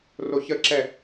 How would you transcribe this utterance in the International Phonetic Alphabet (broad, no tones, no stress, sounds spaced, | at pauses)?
r o ç ə ǁ ɛ